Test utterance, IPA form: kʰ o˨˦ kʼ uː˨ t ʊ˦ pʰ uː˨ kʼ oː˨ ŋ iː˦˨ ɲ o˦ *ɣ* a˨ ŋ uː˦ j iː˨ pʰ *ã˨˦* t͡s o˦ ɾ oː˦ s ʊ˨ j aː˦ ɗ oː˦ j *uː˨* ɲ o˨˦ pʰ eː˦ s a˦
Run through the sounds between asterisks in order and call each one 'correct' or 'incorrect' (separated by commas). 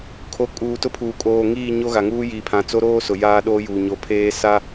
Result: correct, correct, correct